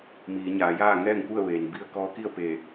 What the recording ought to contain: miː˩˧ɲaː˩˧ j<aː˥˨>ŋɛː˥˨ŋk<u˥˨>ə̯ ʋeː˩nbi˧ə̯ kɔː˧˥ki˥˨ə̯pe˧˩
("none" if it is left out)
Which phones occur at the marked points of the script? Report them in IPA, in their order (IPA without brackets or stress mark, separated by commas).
aː˥˨, u˥˨